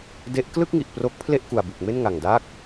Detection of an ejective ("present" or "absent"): absent